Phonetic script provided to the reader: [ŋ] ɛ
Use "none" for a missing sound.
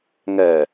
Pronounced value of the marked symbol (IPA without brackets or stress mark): ŋ